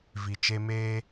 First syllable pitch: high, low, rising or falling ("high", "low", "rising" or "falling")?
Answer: low